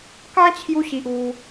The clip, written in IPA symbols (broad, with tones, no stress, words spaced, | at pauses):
kã˦t͡ɕʰju˧ɕi˨ʔ u˧